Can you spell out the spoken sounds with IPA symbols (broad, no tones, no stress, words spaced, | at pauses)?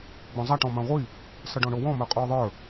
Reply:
ɡ͡bõzˤaʈ ɔ̃mãʁʷi | sʌɖɔ̃ɳowɔ̃ mə˞qʼoːðˤə˞